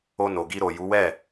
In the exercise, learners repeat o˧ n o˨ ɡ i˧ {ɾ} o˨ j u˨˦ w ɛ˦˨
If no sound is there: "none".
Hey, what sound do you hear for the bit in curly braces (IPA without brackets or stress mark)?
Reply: ɾ